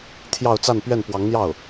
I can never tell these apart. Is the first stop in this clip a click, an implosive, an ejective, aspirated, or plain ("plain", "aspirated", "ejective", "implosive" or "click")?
aspirated